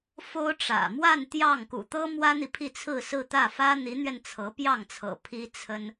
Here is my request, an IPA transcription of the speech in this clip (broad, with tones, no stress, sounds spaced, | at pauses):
f o˥ ʊ̯ ʈ͡ʂ ä̰˨˩ m w a˥˧ n t̪ j ɑ˥˩ ŋ k ṵ˨˩ t̪ ɤ˥ m w ä˥ n̪ i˨ pʰ i˥˧ t͡sʰ ɹ̩˥˧ s ɹ̩˥˧ t̪ ä˥˩ f ä˥ n̪ i˧˥ n̪ ɥ ɛ˧ n t͡sʰ ɤ˧˥ p j ɑ˥˩ ŋ t͡sʰ ɤ̰˨˩ pʰ i˥ t͡sʰ ə˥ n